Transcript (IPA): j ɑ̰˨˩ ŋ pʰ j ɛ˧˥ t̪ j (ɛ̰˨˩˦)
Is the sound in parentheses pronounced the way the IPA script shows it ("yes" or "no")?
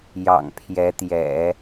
yes